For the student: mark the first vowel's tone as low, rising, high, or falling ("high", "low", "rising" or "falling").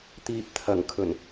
low